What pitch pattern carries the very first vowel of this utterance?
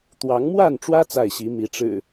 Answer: rising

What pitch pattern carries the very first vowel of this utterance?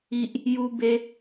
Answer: low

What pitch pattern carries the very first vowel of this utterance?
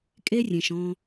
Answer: high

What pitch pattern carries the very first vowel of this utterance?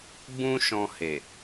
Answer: high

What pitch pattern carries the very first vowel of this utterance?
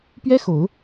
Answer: high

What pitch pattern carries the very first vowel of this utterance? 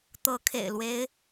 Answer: rising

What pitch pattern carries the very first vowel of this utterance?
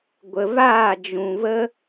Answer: low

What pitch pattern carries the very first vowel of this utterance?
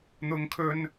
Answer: high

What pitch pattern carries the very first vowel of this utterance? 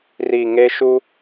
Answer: low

